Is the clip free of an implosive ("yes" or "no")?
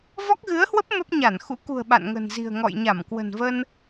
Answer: no